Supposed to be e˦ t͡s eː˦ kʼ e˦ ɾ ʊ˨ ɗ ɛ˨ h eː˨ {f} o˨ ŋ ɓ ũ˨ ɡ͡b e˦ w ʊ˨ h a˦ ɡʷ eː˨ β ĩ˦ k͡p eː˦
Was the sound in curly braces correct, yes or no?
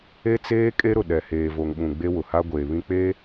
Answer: no